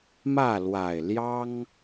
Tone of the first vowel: falling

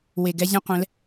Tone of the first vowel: low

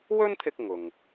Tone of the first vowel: high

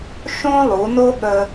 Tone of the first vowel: high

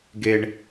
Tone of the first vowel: low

